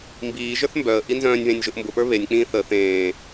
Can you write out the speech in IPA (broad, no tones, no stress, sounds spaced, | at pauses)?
m b iː ʒ ə˞ θ m b œ ə̯ ʔ i n z œ̃ː nʲ β ẽ nʲ ʒ ʊ ʔ m b ʊ p ə˞ β e nʲ k͡p ĩː θ ə θ ẽː